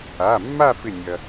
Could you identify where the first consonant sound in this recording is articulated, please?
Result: labial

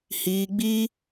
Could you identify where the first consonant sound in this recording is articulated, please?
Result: glottal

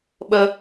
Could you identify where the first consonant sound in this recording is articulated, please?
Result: labial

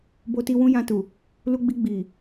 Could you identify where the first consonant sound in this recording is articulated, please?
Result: labial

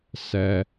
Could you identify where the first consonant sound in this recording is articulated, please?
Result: alveolar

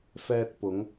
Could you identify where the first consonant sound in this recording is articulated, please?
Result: labial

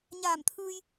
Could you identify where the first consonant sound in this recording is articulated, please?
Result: palatal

